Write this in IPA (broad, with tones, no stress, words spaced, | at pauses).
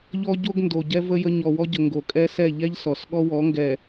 ʎɔ˦ ɟo˦ɡndo˨ɟɛ˦ və˦jə˦ ɲɔ˨wɔ˦ɟə˨ ŋɡo˨kʼɛ˦sɛ˦˨ ʎɛ˦ʎ sɔ˨sɠɔ˦wɔ˨˦ŋɡɛ˨